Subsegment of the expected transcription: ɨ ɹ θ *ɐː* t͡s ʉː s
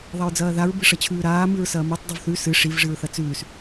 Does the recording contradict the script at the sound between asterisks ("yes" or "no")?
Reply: yes